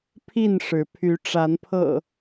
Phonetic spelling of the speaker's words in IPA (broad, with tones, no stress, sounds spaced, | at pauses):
pʰ i˥˨ n ʂ ɻ̩˨˦ pʰ y˨˦ ʈ͡ʂ a˨˦ n pʰ ɤ̰˨˩